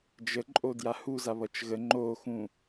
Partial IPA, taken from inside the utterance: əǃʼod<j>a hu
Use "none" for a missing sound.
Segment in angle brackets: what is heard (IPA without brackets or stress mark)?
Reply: j